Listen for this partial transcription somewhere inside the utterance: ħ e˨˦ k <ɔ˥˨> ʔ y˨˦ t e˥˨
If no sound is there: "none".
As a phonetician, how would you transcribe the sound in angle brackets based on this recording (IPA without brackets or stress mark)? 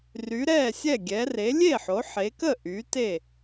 ə˥˨